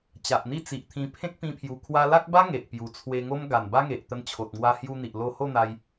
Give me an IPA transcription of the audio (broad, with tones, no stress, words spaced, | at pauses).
t͡ɕa˨ʔn̪i˥˧t͡si˨ʔt̪ʰĩ˧ pʰẽ˦k̚pĩ˧pʰju˨˩ kʰwa˧la˦k̚ba˦ ŋe˨ʔpju˨˩t͡sʰwe˧ŋo˦m ɡa˨˩nba˦ŋe˨ʔt̪ə˧n t͡ɕʰo˨t̚ŋwa˧hju˧n̪i˨ʔ lo˧ho˥˧n̪a˧j